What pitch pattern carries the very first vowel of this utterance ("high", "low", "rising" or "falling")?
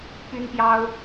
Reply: high